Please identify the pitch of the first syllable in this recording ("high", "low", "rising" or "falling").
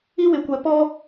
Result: high